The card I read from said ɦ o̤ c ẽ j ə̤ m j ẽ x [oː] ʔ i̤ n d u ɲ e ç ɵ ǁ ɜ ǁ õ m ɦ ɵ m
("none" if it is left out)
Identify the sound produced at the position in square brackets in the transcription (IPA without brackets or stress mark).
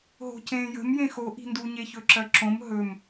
o